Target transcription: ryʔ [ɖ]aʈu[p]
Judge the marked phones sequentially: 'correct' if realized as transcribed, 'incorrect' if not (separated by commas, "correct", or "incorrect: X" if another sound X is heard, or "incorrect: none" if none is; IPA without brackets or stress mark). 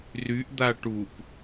incorrect: d̪, correct